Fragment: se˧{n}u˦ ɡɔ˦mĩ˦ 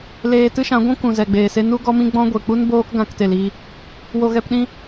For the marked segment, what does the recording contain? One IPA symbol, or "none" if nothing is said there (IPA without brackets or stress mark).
n